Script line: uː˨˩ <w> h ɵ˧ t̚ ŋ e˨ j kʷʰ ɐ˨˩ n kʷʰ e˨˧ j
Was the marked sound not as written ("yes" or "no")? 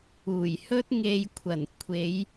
yes